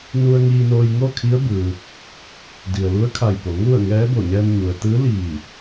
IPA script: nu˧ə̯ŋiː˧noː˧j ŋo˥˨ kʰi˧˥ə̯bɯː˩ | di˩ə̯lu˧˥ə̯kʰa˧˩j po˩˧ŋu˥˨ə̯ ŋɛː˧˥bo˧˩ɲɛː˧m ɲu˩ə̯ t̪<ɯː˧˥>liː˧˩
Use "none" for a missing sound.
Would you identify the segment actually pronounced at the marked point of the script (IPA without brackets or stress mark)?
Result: ɯː˧˥